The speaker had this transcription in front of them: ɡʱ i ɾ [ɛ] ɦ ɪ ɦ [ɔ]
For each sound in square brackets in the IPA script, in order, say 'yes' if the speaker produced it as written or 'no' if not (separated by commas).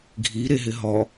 no, yes